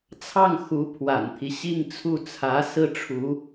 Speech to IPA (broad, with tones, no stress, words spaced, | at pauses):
t͡sʰɑ˥˩ŋ xu˧˥pʰwa̰˨˩nt̪ʰi˦ ɕi˥˧ŋt͡sʰu˥˩t͡sʰä˧˥ sɹ̩˥ʈ͡ʂʰu˧˥